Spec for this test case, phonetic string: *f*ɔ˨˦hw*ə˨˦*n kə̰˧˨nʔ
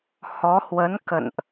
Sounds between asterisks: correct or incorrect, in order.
incorrect, correct

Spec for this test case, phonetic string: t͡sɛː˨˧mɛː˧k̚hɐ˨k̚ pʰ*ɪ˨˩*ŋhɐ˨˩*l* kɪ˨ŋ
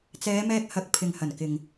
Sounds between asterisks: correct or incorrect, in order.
incorrect, incorrect

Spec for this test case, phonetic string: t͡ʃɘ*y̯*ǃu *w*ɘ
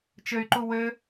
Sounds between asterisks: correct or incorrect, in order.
correct, correct

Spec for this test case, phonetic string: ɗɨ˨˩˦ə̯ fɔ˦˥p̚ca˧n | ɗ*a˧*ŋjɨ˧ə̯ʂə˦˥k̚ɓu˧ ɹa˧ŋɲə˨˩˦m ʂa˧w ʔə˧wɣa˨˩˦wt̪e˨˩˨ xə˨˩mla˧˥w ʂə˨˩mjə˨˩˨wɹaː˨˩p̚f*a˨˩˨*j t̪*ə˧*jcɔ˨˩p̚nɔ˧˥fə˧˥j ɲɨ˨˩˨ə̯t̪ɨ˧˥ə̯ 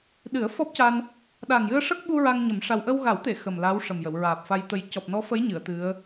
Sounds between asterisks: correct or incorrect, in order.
incorrect, incorrect, incorrect

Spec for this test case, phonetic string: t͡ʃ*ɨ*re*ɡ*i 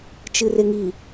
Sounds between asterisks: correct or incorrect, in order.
correct, incorrect

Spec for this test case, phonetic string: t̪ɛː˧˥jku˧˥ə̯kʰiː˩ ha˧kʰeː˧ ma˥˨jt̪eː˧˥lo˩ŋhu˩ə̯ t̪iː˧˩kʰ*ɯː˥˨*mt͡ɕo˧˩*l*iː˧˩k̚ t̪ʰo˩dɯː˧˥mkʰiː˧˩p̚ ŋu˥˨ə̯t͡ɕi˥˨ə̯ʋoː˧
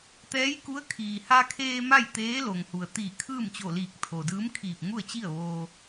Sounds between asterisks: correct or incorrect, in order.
correct, correct

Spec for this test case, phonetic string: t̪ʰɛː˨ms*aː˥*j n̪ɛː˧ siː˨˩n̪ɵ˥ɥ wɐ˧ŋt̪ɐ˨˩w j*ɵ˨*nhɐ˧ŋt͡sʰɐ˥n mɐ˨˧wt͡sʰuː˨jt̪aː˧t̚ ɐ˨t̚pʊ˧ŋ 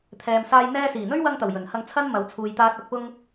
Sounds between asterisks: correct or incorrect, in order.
incorrect, incorrect

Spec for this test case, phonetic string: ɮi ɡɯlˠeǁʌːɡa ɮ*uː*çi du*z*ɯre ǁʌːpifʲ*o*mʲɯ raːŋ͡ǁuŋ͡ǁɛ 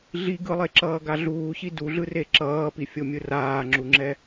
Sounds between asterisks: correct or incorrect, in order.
correct, incorrect, correct

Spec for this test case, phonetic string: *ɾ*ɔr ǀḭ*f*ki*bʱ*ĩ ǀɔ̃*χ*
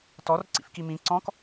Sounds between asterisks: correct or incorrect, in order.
incorrect, correct, incorrect, incorrect

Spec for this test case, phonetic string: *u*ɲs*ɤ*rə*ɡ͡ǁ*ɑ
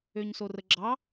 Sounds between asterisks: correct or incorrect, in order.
incorrect, incorrect, correct

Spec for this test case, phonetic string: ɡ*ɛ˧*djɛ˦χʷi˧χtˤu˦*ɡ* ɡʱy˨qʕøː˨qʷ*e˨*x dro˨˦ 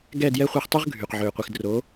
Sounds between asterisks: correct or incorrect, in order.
incorrect, incorrect, incorrect

